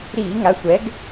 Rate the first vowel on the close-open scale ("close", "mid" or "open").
close